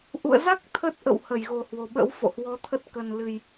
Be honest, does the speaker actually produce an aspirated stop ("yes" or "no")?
yes